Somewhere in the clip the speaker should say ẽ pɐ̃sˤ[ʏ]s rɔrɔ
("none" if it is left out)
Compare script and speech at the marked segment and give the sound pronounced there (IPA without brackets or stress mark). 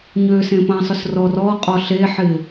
ʏ